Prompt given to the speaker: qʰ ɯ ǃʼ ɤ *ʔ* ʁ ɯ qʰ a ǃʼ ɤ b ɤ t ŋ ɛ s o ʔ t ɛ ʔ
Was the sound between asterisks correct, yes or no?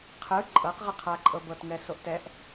no